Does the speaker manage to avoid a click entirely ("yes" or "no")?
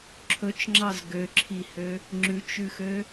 no